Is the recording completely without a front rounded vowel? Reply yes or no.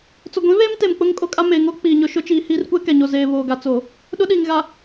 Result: yes